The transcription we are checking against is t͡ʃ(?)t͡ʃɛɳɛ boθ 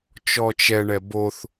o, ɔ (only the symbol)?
ɔ